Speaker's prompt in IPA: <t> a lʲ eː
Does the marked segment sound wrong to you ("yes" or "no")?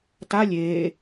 no